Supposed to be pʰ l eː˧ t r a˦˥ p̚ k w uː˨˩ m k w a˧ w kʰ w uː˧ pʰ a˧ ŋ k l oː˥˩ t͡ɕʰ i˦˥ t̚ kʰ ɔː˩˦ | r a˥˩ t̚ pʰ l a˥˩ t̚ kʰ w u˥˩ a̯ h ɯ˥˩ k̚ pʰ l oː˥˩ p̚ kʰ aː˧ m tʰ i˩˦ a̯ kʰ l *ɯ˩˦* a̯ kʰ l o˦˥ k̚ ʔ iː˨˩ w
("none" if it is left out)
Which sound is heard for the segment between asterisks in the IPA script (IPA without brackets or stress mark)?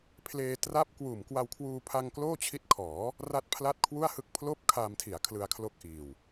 ɯ˧